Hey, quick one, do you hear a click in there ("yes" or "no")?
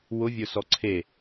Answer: yes